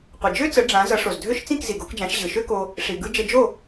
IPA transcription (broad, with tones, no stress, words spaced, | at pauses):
qʷʌ˩d͡ʒø˥t͡sə˩˥ ɖ͡ʐã˩˥ zʌ˩˥ʂo˩z dʱø˥ʃ t͡sĩ˥˩k zi˩ɡo˩˥kd͡ʒã˩˥ʃ ʑɯ˩ʃø˥ko˧ | ʂi˩ɡɯ˧ d͡ʒə˧d͡ʒo˥˩